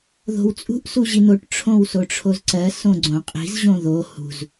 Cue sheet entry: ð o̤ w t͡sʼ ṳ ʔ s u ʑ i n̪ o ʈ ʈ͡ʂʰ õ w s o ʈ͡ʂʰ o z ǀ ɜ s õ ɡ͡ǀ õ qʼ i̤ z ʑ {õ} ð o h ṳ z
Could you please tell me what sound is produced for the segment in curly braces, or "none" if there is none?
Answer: õ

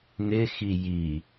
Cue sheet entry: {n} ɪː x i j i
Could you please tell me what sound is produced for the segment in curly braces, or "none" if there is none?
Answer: n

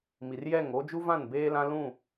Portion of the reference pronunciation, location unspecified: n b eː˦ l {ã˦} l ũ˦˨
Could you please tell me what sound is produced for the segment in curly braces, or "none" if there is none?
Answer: ã˦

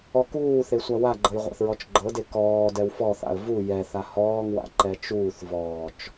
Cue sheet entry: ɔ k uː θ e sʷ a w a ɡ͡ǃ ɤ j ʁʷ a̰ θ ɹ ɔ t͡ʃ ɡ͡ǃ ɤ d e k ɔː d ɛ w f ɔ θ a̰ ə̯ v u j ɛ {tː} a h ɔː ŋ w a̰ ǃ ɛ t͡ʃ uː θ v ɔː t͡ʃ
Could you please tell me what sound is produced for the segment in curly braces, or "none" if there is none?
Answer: θ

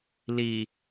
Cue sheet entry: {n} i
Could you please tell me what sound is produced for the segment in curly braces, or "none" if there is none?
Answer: l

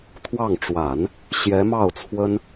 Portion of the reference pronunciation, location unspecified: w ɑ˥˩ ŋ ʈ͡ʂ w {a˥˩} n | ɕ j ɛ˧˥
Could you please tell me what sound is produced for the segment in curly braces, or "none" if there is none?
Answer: a˨˩˦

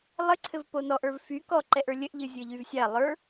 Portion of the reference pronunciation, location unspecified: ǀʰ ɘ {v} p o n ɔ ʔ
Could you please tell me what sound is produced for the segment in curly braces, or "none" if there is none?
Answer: v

